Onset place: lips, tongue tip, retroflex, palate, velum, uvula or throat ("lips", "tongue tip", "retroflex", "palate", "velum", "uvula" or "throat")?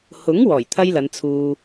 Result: throat